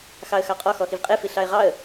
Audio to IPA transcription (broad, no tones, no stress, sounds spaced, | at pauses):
x ɑ ə̯ x ɑ qʼ ɔ x ɔ x i v qʼ e f i ɬ ɑ ɪ̯ ʁ ɑ ə̯